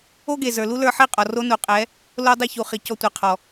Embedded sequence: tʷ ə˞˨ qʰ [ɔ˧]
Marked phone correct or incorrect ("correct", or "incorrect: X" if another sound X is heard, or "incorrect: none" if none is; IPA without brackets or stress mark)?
incorrect: ɔ˨